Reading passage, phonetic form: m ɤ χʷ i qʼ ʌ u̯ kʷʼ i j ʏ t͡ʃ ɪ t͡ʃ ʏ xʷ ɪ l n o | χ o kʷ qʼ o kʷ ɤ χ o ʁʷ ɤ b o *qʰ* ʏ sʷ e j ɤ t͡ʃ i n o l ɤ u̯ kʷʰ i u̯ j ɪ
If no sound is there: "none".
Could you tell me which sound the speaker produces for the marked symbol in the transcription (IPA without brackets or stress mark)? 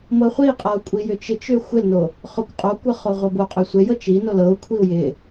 qʼ